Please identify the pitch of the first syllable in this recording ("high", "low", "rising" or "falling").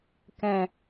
low